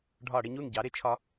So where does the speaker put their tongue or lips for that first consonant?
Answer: retroflex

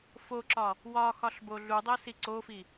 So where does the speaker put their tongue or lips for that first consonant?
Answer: lips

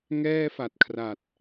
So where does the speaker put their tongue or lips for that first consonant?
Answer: velum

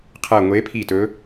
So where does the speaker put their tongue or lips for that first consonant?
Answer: uvula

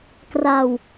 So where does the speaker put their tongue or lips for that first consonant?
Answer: velum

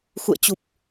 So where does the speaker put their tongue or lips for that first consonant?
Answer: velum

